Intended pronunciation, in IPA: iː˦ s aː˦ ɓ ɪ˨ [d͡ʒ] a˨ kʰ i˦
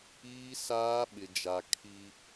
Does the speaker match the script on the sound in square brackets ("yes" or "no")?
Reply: yes